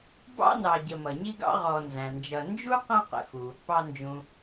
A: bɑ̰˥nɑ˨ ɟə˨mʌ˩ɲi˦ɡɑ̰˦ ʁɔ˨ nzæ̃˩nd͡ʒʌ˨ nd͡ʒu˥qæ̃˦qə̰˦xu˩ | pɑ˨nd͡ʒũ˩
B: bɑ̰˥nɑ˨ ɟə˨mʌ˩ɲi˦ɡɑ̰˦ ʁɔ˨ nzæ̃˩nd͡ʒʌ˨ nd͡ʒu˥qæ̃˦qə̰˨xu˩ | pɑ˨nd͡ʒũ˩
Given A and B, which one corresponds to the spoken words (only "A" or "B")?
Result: B